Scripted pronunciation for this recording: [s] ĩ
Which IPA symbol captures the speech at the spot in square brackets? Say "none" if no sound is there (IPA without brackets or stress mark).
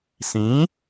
s